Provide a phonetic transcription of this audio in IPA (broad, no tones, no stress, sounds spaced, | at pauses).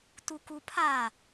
t u k u pʰ a